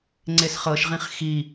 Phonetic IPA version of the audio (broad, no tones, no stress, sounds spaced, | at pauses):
ŋ͡ǀ e s χ ɤ ʃ ʁ ĩ χ x i